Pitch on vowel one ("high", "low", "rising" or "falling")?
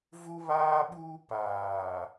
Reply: high